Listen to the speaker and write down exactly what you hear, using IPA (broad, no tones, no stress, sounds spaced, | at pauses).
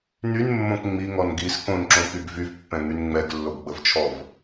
n y n mː õ k ŋ͡m i ŋ ɔ n ɡ i s k õ n ǁ õ k y ɡ v y v pː ɛ̃ ŋ y n ŋ͡m ɛ ɡ lː o ɡ ɡ͡b ə v t͡ʃʰ ɔ v